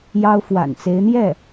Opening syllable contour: high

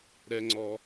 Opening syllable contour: high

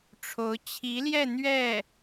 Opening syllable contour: rising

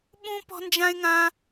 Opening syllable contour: high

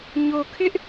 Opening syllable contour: low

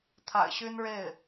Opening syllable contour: low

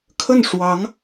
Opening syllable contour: falling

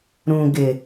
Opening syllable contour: low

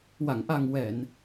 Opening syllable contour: low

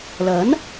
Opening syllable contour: rising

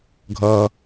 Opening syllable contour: low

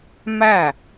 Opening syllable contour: falling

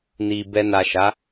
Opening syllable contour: low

